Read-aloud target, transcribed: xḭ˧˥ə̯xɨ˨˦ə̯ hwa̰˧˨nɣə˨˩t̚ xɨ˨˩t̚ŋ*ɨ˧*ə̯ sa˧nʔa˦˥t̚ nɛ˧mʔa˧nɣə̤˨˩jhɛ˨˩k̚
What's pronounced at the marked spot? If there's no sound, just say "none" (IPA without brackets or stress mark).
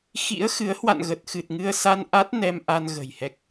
ɨ˧